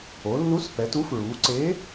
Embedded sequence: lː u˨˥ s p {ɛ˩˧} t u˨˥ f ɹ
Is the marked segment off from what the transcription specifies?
no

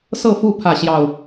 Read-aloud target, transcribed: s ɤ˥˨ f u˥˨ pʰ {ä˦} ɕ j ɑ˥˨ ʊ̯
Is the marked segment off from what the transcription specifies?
yes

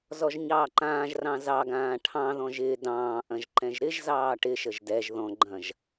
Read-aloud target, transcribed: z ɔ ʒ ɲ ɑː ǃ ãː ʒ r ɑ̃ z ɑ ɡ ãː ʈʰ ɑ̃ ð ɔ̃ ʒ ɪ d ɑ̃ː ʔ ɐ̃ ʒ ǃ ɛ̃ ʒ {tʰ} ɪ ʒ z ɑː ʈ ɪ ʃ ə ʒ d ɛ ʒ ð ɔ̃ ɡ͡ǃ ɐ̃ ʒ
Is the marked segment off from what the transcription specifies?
yes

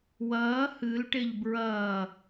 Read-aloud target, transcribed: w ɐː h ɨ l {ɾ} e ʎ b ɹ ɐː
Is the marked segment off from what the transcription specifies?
yes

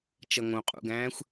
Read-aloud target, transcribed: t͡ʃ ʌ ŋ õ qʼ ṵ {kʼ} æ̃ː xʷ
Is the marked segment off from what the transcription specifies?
yes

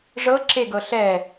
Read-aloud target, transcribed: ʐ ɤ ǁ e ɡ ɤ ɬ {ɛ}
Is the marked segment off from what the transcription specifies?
no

